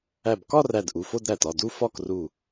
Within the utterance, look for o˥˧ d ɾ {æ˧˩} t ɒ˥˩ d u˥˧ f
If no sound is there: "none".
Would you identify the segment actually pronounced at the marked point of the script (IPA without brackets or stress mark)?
æ˧˩